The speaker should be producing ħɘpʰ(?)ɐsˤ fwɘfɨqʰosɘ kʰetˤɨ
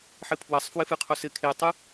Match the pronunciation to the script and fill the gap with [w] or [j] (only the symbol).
w